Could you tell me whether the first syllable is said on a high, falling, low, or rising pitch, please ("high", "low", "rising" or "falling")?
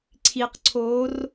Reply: low